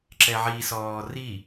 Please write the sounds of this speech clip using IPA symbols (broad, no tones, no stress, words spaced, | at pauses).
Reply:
ǁɛʕisɔː ri